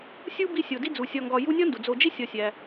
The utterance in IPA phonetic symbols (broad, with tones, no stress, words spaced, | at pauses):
sʲu˥bi˦ sʲo˨di˥d͡zu˨ sʲɒ˨ŋɡɒ˨ ju˦nʲɒ˥ndu˩ d͡zo˨d͡ʒi˥sʲɒ˨sʲæ˩